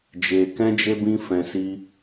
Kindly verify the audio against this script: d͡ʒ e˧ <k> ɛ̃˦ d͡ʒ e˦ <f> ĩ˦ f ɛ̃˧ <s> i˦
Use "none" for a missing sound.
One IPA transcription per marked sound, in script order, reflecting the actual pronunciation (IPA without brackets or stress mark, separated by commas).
k, b, s